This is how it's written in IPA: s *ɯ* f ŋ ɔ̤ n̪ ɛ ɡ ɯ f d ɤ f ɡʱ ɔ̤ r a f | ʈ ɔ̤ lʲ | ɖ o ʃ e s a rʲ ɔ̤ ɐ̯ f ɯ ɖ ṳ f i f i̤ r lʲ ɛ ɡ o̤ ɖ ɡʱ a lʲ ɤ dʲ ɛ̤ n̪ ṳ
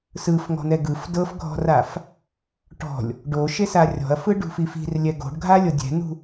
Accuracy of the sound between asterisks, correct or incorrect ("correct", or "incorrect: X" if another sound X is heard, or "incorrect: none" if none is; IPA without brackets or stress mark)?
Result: correct